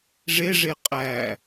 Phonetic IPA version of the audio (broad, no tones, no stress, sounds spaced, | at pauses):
ʐ e ʐ e qʼ æ